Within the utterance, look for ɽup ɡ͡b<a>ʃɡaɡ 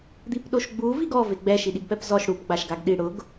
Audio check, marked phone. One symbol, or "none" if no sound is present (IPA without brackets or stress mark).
a